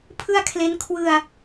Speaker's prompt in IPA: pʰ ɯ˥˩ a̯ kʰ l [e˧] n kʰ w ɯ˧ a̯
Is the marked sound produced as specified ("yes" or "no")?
no